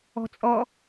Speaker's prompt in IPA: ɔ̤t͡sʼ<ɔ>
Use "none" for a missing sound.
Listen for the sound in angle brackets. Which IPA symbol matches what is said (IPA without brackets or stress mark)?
ɔ